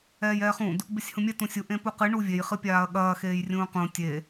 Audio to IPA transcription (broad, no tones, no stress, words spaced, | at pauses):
ɛːjɛːχũd | besʲhũmʲɛ tũsʲu ʔẽpuqɨ ɳuvʲej χɨpʲaːɐ̯ɠɐː xeːjrʲũːqũ tʲe